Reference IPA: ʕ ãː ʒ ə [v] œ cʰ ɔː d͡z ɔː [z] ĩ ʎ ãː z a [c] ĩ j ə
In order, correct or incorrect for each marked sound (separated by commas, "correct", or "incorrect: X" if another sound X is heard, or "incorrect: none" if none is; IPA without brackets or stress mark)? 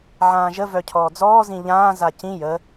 correct, correct, correct